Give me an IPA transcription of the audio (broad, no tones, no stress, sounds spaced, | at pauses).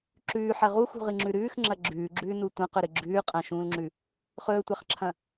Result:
ǁ ʉː ħ ɐ ʁ u x ṳ ʁ ɨ ŋ͡ǁ ʉ ɾ ʉː x ŋ͡ǁ ɐ ɡ͡ǁ ʉː ɡ͡ǁ ʉː n u tʷ ɐ̃ q ɵ ɾ ɨ ɡ͡ǁ ʉː qʼ ɐ̃ ʃ ũː l ŋ͡ǁ ʉ | χ ɵː tʷ a χ ǁʰ ɐ̃